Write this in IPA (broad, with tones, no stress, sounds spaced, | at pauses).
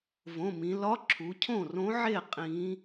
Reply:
v õ˩˧˩ m ĩ˩˧ l ɒ˧˥ ǁʰ u˩˧ cʰ õ˥˩ r õ˧˥ ʕ e˥˩ qʼ ĩ˩˧